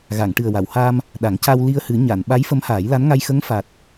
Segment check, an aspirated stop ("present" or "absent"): absent